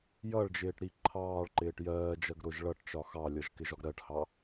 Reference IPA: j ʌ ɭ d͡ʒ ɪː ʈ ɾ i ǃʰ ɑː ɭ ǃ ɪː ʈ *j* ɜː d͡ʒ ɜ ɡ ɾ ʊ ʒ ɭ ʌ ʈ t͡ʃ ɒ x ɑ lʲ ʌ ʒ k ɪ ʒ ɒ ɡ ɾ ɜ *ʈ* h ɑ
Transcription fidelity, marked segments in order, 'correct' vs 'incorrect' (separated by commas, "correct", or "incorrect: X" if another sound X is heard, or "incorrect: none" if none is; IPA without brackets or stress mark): correct, correct